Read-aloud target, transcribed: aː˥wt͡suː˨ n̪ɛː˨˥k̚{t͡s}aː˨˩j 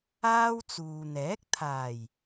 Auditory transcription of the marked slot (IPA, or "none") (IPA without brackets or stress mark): t̪ʰ